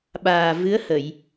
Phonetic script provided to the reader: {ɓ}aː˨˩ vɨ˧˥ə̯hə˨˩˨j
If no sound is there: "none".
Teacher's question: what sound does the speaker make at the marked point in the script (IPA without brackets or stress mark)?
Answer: ɓ